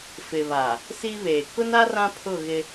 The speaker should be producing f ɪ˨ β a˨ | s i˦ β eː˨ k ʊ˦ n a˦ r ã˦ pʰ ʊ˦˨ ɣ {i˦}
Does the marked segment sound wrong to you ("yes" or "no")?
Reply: yes